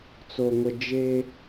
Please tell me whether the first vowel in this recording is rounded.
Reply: yes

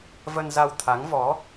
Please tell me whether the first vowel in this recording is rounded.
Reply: no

